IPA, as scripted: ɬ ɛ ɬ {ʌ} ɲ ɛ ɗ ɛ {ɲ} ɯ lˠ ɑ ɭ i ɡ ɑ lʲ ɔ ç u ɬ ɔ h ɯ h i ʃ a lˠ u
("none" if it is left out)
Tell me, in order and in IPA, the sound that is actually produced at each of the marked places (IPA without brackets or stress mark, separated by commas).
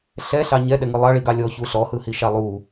ɑ, ŋ